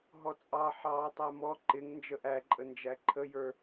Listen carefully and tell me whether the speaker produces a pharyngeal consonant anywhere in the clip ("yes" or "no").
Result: yes